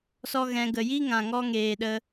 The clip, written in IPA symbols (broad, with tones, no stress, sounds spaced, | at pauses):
s ɔ˦ ɣ ɛ̃˧ ɡ ə˨ j i˦ ŋ ã˨ ŋ ɔ˧ ŋ eː˨ ɗ ə˧